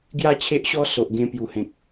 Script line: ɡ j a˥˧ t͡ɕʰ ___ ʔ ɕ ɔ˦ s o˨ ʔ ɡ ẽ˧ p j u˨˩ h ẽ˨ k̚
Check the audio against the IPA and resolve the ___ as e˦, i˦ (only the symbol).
e˦